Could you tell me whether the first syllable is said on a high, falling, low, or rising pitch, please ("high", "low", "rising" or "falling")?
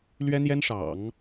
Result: high